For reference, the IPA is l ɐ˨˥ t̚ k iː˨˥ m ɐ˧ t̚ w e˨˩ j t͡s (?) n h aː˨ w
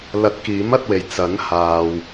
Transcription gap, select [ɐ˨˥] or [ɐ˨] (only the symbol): ɐ˨˥